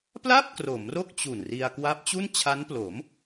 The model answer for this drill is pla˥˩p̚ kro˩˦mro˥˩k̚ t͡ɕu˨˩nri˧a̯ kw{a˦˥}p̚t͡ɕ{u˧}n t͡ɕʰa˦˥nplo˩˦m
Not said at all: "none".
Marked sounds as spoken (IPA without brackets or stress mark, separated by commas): a˦˥, u˥˩